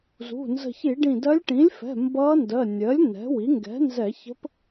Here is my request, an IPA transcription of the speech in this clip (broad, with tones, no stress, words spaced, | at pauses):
zṳ˩˧˩ nzə̤˧˩çi˧˩˧ɖĩ˧˩dɜ˧˥lʲ ʈĩ˩˥lʲfɛ̤˩˧˩ mbʌː˧˥ndɜ˩˧˩ nʲɜ˩˥lʲ nɛ̤˩˥wi˩˥ ŋɡɛ̤˩˥nzɛ˧˩˧ çə̤˧˥p